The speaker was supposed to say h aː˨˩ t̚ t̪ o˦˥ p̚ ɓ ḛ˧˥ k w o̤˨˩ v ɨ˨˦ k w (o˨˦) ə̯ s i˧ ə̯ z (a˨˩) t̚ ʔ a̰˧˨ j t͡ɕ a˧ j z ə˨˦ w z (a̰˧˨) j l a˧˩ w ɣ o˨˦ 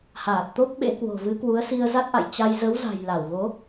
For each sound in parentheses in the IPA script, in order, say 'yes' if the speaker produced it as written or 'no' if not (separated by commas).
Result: no, no, no